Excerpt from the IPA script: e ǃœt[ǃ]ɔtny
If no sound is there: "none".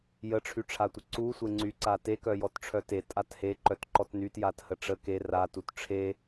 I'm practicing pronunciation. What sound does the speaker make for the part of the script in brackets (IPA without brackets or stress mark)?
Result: ǃ